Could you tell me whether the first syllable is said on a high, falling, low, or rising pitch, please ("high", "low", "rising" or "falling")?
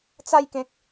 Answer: falling